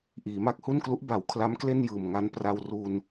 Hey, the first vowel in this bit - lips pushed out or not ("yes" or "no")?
no